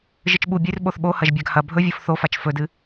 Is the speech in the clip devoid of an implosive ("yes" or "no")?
no